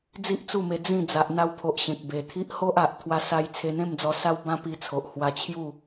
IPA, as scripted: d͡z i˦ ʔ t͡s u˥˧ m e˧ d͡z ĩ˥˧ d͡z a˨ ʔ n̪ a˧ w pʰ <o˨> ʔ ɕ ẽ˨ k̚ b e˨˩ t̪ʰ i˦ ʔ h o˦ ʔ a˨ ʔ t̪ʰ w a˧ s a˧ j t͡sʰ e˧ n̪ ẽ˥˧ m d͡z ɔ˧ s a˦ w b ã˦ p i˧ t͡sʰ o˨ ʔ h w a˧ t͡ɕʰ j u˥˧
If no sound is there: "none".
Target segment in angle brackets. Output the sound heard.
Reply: o˨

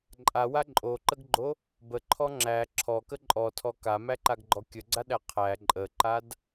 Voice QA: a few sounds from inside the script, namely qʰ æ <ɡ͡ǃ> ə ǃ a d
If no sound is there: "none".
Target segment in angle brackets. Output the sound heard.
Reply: ǃʼ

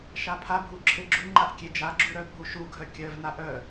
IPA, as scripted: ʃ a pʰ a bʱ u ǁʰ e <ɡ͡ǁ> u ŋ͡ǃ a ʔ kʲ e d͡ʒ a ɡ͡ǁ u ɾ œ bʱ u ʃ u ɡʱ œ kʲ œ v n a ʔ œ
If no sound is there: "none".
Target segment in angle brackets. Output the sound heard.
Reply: ɡ͡ǁ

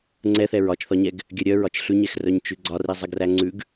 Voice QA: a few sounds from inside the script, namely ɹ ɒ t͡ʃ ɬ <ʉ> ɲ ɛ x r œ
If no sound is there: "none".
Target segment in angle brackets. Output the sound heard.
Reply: ʉ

